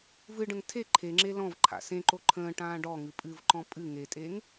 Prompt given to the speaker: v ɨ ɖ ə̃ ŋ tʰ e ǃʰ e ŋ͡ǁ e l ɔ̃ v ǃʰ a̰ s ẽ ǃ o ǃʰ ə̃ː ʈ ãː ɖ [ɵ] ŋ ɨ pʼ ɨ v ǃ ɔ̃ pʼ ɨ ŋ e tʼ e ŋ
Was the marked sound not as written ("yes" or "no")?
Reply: yes